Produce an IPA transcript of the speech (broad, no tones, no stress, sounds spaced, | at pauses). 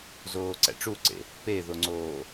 z oː ǀ æ̰ ʈ͡ʂ u ǀ ḛ | p e ð o ŋ͡ǀ oː